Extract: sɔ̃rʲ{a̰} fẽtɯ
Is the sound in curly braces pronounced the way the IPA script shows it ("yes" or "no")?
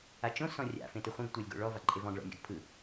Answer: yes